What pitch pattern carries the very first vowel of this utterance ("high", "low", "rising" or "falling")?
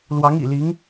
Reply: rising